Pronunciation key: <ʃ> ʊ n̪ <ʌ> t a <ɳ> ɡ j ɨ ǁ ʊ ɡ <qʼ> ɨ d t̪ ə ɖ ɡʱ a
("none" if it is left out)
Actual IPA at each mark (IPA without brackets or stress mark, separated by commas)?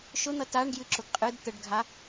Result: ʃ, ʌ, ɳ, qʼ